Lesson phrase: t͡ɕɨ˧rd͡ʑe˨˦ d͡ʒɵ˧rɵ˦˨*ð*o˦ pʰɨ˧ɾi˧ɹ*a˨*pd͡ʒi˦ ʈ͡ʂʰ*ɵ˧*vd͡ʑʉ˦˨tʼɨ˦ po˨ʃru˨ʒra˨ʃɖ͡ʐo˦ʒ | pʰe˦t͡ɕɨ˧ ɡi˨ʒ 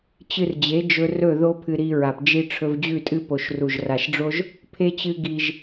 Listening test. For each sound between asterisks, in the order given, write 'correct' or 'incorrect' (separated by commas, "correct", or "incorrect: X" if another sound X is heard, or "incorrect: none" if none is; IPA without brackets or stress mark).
correct, correct, correct